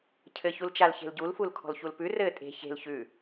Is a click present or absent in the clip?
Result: absent